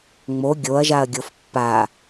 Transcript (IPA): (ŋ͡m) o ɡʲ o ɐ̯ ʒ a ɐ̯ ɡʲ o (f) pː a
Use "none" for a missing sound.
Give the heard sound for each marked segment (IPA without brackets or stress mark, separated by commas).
ŋ͡m, f